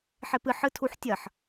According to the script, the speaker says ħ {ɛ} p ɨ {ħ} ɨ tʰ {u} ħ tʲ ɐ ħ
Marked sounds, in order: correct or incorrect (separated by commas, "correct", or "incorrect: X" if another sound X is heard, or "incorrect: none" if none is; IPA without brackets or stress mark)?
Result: incorrect: e, correct, correct